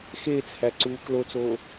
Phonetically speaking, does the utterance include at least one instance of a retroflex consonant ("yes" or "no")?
no